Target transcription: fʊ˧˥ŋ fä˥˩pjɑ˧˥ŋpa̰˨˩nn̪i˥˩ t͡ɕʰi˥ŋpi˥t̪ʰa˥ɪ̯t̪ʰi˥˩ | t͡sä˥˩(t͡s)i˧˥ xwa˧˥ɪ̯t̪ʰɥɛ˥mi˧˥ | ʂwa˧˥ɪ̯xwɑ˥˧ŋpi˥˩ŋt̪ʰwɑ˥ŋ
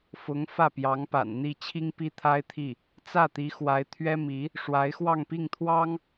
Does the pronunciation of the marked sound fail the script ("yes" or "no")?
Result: yes